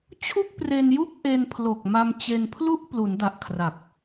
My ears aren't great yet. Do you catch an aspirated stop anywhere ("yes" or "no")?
yes